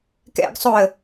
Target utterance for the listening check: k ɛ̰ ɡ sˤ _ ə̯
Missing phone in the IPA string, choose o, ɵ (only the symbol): o